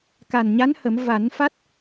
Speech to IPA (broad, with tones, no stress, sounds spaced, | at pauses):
k a˨˩ n ɲ a˧˥ n h ə˨˩˦ m v a˨˩˦ n f a˦˥ t̚